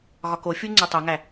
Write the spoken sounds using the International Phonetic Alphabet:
ɣ ɒ k o fʲ u ŋ͡ǀ e tˤ o ŋ æ

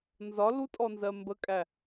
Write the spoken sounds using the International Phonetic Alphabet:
n z ɒ l u tʼ ɔ n z ɜ m b ə kʼ æ

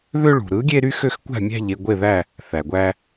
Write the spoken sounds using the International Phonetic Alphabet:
ð ø˦ ɭ ṳ˩ ɾ ɯ˨˥ ɡʲ e˦ ɾ y˦ x ø˦ x kʷ æ̤˦˨ mʲ æ̤˦˨ ʎ e˦˨ ɡʷ e˦˨ ð æ˦˨ | θ æ˩ ɡʷ æ˦

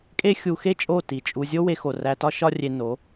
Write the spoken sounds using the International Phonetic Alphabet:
kʼ e˦ xʲ u˧ x e˦ t͡ʃʼ o˦˨ t i˨ t͡ʃʼ u˧ zʲ o˦ w e˧ x o˨ r æ˧ t ɒ˦ ʃ ɒ˦ rʲ e˧ n o˨˦

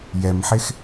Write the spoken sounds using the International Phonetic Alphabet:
j ɛ m ħ e x

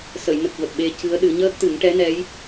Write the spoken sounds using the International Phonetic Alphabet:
s ə˨˩˨ j n ə˨˩ k̚ v ə˨˩ k̚ ɓ e˧ c ɨ˧˥ ə̯ ɗ ɨ˨˩˦ ɲ əː˦˥ k̚ t̪ ɨ˨˩˦ ŋ ʈ ɛ˧˥ n ɛ˧˥ j

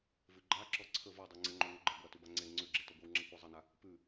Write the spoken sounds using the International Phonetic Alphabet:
v ʉ ɡ͡ǃ a ǁ ɔ ǀʰ ə v ɔ dˤ ʉ ŋ͡ǀ ə ŋ͡ǃ o ŋʷ ə ɡ͡ǃ ə ɡʷ a t ʉ b a ŋ͡ǀ e ŋ͡ǀ ʉ ɡ͡ǁ e t ɔ ɡʷ e w ŋ͡ǁ a kʷ a zˤ ə n a | p ʉ

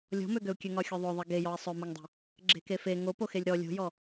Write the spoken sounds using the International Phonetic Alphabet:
lʲ ɔ̤ m ø ɡ ø u̯ kʲ ø ŋ ɒ xʲ o ðˤ o ðˤ e ɡ e j ɔ i̯ sˤ ø m o ŋ dˤ e̤ | ɡ͡ǁ e̤ k e f e ŋ o p o x e lʲ ɾ ɔ lʲ o̤ j ɔ

